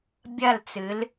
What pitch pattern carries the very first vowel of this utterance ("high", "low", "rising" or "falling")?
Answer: falling